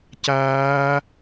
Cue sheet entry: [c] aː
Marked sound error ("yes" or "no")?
no